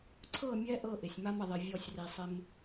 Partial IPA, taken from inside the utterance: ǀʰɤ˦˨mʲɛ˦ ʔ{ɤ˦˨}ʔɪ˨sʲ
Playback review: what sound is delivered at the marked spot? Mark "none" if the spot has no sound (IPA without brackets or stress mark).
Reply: ɤ˦˨